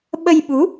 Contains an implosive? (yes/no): yes